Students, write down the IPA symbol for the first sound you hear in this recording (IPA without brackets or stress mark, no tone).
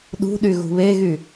ɗ